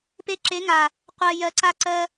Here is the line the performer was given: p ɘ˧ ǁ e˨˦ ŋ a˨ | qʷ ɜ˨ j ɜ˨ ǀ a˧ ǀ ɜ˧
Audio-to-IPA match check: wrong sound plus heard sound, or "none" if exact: ɘ˧ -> e˧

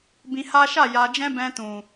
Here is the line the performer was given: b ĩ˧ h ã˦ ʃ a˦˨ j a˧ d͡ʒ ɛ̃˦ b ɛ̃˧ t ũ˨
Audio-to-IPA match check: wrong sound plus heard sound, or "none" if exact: ã˦ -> a˦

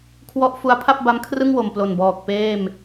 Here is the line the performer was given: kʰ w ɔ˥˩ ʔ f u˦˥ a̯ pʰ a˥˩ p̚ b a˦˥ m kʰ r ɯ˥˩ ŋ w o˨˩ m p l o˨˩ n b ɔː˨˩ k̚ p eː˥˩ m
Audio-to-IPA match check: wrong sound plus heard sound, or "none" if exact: none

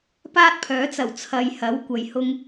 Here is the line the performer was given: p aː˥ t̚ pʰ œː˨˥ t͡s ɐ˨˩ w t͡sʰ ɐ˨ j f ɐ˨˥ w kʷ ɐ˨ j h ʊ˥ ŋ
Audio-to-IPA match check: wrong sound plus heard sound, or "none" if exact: f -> h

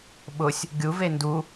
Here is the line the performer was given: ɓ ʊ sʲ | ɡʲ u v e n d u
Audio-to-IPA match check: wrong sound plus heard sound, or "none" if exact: none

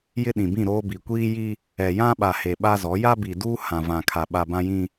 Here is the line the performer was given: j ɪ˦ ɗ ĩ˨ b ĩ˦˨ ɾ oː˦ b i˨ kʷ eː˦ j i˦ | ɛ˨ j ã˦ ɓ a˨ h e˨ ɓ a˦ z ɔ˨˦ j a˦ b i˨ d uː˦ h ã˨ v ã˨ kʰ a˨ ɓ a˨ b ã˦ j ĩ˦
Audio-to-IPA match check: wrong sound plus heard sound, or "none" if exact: eː˦ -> iː˦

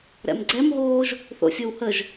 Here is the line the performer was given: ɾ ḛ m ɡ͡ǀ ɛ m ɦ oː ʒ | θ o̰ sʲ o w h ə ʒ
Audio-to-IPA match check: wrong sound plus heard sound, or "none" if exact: ḛ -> ɛ̰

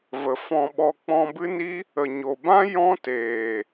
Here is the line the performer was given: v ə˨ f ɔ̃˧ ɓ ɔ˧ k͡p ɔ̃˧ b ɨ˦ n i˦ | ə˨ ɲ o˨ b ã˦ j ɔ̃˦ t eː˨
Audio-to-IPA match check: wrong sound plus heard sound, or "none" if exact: none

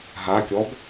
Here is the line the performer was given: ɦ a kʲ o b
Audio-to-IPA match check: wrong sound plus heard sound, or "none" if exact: o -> ɔ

